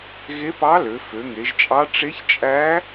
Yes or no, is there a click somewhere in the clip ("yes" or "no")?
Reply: no